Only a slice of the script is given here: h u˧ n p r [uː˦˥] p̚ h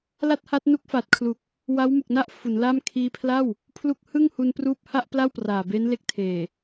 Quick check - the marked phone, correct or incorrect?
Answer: correct